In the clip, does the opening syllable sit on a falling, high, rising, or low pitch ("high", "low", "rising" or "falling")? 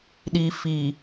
low